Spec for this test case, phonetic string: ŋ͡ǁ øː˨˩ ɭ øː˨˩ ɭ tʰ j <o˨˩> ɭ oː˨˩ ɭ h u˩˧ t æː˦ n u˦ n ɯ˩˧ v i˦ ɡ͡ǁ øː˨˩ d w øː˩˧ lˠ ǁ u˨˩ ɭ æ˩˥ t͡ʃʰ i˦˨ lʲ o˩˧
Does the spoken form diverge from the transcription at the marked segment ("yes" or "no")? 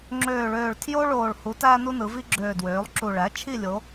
yes